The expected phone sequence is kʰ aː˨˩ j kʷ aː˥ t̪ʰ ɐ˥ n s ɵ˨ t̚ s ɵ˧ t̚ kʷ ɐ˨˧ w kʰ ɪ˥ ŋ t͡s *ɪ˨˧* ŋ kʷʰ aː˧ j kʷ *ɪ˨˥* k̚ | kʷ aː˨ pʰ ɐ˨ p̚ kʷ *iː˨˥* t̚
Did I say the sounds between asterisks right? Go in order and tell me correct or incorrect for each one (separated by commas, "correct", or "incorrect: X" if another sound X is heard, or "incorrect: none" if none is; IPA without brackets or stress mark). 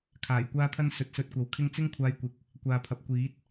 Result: incorrect: ɪ˥, correct, correct